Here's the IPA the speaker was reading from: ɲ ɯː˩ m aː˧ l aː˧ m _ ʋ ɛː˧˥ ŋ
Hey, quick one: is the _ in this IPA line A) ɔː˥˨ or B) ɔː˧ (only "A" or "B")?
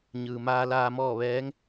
A